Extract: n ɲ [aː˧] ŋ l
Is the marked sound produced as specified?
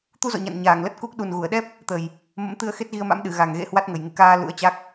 no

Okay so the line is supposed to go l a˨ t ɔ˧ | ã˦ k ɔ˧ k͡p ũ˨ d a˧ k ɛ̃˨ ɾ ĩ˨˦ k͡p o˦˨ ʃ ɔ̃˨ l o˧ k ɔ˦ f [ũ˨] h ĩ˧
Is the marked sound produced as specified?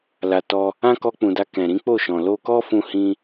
no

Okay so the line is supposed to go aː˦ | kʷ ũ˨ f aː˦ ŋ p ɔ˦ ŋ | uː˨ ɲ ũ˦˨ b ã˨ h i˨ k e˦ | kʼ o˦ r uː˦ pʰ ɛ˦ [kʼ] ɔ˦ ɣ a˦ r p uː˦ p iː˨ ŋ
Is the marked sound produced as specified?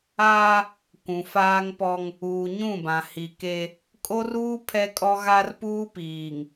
yes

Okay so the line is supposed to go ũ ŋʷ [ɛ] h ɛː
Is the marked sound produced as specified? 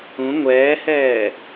no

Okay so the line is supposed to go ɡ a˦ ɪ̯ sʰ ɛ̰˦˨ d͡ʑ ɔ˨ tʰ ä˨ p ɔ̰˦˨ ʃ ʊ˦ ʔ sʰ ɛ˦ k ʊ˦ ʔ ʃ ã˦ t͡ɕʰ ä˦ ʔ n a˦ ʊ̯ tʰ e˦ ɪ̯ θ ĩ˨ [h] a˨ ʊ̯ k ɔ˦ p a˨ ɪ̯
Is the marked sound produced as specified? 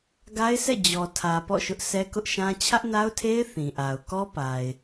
no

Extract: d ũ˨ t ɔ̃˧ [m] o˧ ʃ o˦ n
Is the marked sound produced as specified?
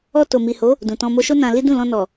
yes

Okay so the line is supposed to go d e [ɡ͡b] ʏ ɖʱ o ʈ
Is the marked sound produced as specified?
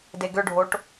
no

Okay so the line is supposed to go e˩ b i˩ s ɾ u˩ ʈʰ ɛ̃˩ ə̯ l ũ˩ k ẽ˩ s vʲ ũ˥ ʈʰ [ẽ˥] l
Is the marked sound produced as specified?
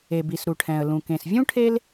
no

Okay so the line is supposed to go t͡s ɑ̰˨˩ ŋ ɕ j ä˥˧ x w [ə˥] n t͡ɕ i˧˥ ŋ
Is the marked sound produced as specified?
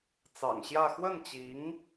no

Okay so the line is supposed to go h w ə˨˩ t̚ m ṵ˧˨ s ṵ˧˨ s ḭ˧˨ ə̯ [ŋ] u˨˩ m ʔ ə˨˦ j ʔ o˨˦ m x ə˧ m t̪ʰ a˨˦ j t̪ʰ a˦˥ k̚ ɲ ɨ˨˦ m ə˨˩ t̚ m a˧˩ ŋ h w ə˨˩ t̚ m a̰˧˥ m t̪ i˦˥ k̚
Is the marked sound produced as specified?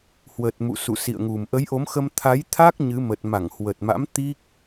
yes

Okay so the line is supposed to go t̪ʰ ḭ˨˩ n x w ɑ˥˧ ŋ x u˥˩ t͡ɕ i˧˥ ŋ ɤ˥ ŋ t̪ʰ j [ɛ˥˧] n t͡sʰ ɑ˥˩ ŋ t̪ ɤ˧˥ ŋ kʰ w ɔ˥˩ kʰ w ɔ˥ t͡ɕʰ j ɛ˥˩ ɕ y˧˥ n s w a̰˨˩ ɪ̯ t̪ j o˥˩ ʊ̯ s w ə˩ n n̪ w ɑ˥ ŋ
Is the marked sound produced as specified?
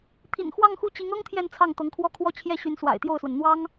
yes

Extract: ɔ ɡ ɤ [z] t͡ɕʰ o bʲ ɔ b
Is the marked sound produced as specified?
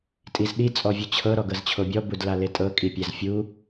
yes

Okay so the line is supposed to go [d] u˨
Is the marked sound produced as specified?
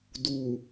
yes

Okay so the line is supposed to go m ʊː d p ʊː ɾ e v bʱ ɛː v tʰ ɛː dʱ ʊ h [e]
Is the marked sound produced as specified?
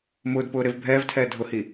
no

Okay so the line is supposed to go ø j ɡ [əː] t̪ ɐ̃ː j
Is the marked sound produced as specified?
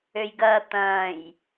no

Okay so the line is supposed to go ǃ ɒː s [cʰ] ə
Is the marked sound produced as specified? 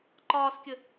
no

